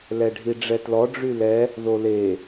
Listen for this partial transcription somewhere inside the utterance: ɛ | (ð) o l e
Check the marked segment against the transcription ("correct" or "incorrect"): correct